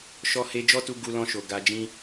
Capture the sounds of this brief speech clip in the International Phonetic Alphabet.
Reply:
ʃ ɔ˧ h e˧ d͡ʒ ɔ˦ t u˧ ɡ u˧ l ɔ̃˧ ʃ o˨ ɡ a˧ d͡ʒ ĩ˦

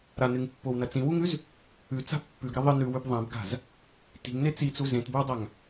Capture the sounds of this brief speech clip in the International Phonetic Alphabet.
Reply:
ɾ a n ɨ ŋ pː o w n ɐ t͡s ĩ w u ŋ ʉ z | ʉ t͡s a̤ pː ʉ ɡ ɾ ɐ ðˤ ɨ n ʉ w ʉ b ðˤ ã b ɡ a̤ z | t i̤ ŋ n e t͡s i t͡s u z ẽ t b ɵ w dˤ a ŋ

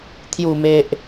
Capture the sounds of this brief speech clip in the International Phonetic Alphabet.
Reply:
t̪ʰ j u˨˩ m e˨ ʔ

